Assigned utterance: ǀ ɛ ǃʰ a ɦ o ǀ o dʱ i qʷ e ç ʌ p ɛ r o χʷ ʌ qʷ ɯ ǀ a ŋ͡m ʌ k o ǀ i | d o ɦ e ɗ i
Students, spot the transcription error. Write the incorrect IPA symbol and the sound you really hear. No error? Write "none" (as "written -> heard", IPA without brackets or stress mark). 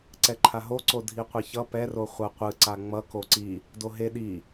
none